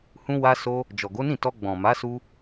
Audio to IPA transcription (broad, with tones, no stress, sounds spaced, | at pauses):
h ũ˧ w a˧ s o˧ | d͡ʒ ɔ˨ ɡ o˨˦ n ĩ˦˨ t ɔ˧ ɡ͡b ɔ̃˨ m a˨˦ s u˧